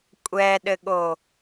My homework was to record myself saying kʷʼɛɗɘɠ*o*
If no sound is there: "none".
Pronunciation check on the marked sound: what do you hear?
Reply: o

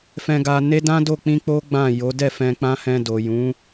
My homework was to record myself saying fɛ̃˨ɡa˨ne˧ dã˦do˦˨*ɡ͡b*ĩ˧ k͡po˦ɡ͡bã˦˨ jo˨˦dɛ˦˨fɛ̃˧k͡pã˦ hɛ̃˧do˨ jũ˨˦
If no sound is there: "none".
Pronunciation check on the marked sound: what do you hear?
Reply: k͡p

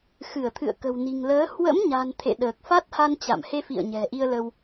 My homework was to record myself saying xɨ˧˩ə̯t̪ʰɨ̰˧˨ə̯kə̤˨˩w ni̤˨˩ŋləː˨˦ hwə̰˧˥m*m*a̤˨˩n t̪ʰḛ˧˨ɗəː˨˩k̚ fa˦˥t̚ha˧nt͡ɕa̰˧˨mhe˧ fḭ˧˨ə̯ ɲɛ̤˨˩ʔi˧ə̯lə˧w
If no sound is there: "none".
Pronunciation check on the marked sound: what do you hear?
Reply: ɲ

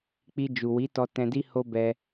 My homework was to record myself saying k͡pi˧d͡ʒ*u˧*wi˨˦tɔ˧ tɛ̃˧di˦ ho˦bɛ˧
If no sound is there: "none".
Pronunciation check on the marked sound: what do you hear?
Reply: u˨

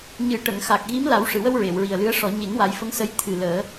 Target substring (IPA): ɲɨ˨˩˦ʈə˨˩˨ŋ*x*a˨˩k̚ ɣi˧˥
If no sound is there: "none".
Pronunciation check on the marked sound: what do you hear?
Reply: x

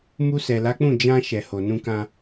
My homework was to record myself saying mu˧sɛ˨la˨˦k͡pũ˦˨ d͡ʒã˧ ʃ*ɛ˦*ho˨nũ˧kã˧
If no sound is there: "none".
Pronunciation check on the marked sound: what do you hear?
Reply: ɛ˨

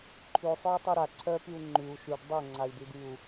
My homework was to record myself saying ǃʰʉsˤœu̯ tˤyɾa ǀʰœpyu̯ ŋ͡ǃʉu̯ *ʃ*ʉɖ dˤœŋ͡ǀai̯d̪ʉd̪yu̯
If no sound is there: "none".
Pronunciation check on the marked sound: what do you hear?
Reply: ʃ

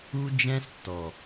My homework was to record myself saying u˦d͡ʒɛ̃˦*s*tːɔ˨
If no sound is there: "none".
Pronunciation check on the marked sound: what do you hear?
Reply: s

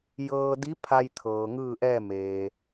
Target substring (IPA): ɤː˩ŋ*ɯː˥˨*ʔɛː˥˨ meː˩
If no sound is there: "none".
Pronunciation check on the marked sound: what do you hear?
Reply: ɯː˥˨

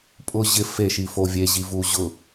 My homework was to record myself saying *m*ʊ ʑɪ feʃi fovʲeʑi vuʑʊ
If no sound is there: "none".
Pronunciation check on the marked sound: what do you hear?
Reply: pʼ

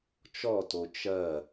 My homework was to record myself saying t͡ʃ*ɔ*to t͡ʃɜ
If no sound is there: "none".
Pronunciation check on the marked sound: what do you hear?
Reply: ɔ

